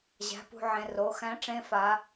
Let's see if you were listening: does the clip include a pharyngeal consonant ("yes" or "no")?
yes